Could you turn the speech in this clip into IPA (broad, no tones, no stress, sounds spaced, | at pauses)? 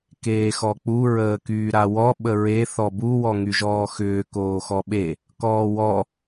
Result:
k eː x ɔ k͡p u ɹ əː k yː ɾ a w ɔ ɓ ə ɹ e θ ɔ b u w ɔ ŋ y ʒ ɔː x ʏː k oː x ɔ ɓ e | k ɔː w ɔ